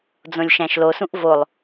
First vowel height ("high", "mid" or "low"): mid